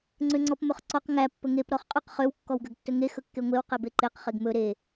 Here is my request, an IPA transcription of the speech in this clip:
ŋ͡ǀ ø ŋ͡ǀ ɔ p m ɵ χ ǀ ɔ q ŋ æ pː ɵ ŋ e p ɾ ɔ χ qʼ ɵ q χ ø w kː ɔ w ɡ ø ɡ tː ɵ ŋ e x ɵ kː e ŋʷ e w q e b e ǃ e q χ e ɡ m ɵ ɾ e

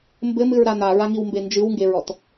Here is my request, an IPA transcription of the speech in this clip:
m b ɘ m ɨ ɹ ɾ a n̪ a ɹ a ŋ i w m b e n d͡ʒ ɨ w ŋ ɡ e ɹ ɔ t

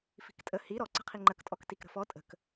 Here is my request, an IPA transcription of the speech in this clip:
f i̤ k tʼ ə h i ɾ ɔ ǀ ə̤ qʰ i ŋ͡ǃ ə k tʼ ɔ k t i k ɾ ə̤ f ɔ tʼ ə̤ k

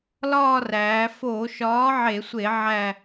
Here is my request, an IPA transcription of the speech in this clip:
l ɒː˦˨ r æː˩˧ f oː˧˩˧ ʃ ɒː˨˥ ʕ e˧˩˧ sʷ e˧˩˧ ʕ æ˦˨

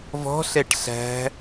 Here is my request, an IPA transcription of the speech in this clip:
v ɔ̤ ɬ ɛ ʈ ɬ æ̤

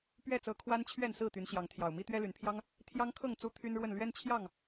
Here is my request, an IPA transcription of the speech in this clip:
p ɥ ɛ˥˨ t͡s ɤ˨˦ kʰ w a˦ n t͡ɕʰ ɥ ɛ˥˨ n s ɹ̩˥˨ t̪ y˨˦ n ɕ j ɑ˨˦ ŋ t̪ʰ j ɑ˨˩ ʊ̯ m i˦ t̪ ɥ ɛ˦ l y˨˩ n pʰ j ɑ˦ ŋ | t̪ʰ j ɑ˦ ŋ kʰ ɤ˥˨ ŋ t͡s u˦ t̪ʰ y˦ n ɻ w ə˥˨ n l ɥ ɛ˦ n t͡ɕʰ j ɑ˥˨ ŋ

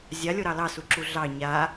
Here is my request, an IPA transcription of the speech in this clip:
zʲ a lʲ o ɾ ɑ l ɑ s u ǁ u ɮ ɑ ɲ a

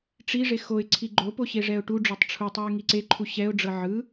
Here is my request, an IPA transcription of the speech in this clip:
ʈ͡ʂ i ʐ e x o ɪ̯ ǀʰ i ɡ͡ǃ o p o ɕ e ʐ ɛ ʊ̯ ʈ u ɖ͡ʐ o tˤ ʈ͡ʂʰ u tˤ ɤ ɪ̯ ŋ i ǀ e ǃʰ u ɕ ɛ ʊ̯ ɖ͡ʐ ɤ ʕ ɯ

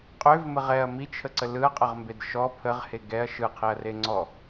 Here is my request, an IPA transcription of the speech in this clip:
qʼ ø v m ə ʁ ɛ ɐ̯ m i t͡ʃʰ ə ǀ ə l ɯ ɐ̯ qʼ ə ʁ m b e d ʃ ɔ pʰ ə ʁ h e ɡ ɛ ɐ̯ ʃ ɯ qʰ i ɐ̯ r e ŋ͡ǀ ɔ

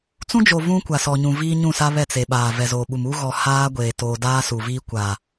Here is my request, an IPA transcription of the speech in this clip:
t͡s ũ˦ d͡ʒ o˨ v ũ˦ kʷ a˨ s ɔ˨ ɲ ũ˨ v iː˦ ɲ ũ˦˨ s a˦ β ɛ˦˨ t͡s e˨ ɓ aː˨ v ɛ˨ z oː˨ ɓ u˨ m u˦ ɣ ɔ˨ h aː˦ ɡʷ eː˨ t oː˨ d aː˦ s u˨ v iː˦ kʷ a˨

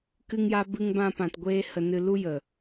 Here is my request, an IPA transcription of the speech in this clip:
k ɨ˦ ŋ j a˦ b ɨ˦ ŋ b ã˦ p ã˧ t ɡʷ eː˦ h ə˧ n ɨ˧ l u˦ j ə˨

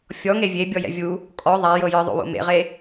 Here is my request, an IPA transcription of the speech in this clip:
fʲ ɔ ŋ e vʲ e bʲ ɔ j ɛ̰ vʲ u | kʼ ɔ ðˤ a j ɤ j ɯ ðˤ o̰ w o̰ m ḛ ʁ e

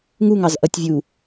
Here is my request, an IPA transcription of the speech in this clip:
ŋ u ŋ ɑ z ʔ ʌ tʲ vʲ uː

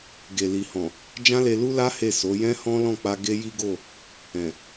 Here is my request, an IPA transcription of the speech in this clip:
ɡ e˨ l i˨ h ɔ̃˨ | d͡ʒ ã˦ l e˧ l u˦ l a˦ h e˦˨ s o˨˦ j ɛ̃˦ h ɔ̃˦ l ɔ̃˦˨ k͡p a˧ ɡ e˦ j i˦ ɡ o˦˨ | ɛ̃˨

